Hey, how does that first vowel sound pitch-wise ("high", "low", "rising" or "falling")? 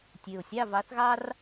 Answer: low